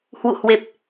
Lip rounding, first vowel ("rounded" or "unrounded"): rounded